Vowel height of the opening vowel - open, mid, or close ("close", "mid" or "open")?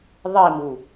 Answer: close